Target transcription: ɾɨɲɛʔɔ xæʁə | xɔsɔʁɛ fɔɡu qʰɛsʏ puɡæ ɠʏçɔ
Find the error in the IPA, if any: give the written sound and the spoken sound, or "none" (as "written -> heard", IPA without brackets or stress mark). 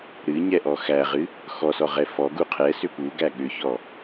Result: ə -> ɨ